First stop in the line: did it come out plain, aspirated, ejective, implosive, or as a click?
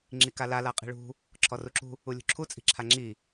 click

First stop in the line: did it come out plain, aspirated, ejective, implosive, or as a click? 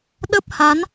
implosive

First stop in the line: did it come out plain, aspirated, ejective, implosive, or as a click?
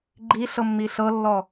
click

